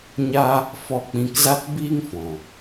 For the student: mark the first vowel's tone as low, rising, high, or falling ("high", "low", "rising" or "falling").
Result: high